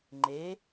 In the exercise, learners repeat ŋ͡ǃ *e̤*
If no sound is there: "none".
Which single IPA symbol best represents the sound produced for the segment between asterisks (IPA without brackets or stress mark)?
e